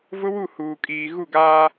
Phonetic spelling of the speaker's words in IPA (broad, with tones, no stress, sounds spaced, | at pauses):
v ʊ˦ w u˦˨ h uː˨ kʼ iː˨ ɣ u˦˨ ɡ aː˦